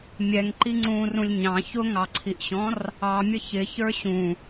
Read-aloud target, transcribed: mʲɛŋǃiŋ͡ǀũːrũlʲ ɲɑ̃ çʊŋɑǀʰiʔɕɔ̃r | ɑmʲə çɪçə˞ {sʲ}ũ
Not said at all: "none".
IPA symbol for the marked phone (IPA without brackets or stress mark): ɕ